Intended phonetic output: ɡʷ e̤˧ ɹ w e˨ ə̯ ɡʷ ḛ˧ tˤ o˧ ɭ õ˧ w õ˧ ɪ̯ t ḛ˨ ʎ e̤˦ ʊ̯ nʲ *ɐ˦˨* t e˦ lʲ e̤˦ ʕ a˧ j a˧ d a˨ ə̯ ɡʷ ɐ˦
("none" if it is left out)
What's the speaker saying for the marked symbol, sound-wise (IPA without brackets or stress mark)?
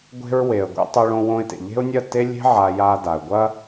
ɐ˦˨